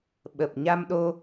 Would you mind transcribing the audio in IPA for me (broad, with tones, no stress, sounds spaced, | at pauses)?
ɓ ə˨˩ p̚ ɲ a˧ m ɗ o˧